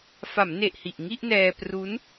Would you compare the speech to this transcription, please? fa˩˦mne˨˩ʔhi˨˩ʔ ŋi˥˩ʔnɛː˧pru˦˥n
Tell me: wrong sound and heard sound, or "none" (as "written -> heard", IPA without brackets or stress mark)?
none